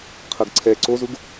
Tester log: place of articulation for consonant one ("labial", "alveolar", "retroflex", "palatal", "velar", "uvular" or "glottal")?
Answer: uvular